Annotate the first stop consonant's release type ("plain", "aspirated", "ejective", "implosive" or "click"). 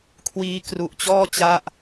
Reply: aspirated